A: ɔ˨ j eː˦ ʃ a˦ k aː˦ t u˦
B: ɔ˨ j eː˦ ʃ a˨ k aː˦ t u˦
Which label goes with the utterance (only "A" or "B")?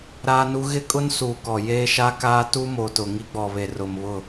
A